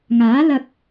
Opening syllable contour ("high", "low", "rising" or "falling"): rising